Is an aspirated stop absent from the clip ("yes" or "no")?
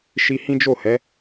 yes